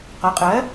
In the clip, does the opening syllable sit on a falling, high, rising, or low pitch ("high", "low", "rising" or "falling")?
rising